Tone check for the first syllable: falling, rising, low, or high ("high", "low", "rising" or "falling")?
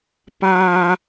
high